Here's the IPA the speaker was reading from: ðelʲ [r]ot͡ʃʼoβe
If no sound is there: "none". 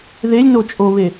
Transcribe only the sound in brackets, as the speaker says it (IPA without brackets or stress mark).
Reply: n